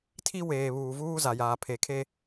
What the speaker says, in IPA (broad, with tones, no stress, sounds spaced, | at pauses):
tʰ i˦ w eː˨ β uː˨ v uː˦ z a˨ j aː˨ pʰ e˨ kʰ e˦